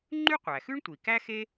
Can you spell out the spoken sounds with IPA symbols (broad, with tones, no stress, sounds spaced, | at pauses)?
ŋ͡ǃ y˥ qʷ æ˩ x ʉ˥ ɳ tʷ i˩ k æ˥ x e˥